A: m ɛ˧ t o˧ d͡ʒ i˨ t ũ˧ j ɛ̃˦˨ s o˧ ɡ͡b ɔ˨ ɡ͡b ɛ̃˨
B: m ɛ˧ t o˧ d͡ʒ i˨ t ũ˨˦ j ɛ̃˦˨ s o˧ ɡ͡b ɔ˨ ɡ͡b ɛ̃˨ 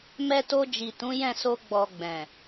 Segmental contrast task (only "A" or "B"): B